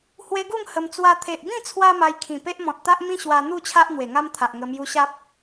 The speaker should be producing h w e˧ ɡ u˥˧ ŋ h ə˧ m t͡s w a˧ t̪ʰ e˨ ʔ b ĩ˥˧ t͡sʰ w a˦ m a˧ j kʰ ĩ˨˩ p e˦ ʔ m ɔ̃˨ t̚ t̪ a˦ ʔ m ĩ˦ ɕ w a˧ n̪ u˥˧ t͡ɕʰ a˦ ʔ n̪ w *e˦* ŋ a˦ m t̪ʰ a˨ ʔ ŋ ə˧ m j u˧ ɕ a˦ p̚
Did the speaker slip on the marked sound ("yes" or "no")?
yes